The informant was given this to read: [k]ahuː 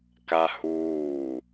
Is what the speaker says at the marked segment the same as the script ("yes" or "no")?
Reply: yes